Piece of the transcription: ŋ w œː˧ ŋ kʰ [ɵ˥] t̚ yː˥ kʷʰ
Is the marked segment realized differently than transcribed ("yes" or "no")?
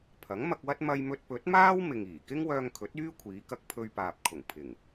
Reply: yes